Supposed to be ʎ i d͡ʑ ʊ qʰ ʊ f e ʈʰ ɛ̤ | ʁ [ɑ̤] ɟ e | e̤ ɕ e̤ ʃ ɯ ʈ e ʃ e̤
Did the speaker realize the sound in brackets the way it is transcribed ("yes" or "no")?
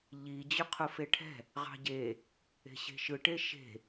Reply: yes